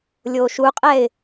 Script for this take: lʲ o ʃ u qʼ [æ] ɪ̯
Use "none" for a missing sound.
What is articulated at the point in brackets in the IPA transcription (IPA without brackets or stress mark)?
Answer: ɛ